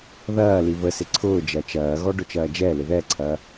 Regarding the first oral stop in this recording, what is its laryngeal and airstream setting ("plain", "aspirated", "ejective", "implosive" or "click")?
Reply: click